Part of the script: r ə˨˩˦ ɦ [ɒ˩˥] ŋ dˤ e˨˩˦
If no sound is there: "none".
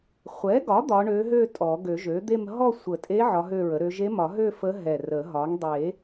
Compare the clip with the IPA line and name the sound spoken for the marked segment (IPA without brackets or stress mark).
ɒ˩˥